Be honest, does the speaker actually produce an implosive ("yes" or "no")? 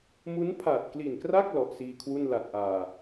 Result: no